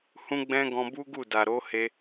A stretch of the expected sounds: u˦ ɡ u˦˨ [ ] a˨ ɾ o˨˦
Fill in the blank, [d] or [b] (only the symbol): d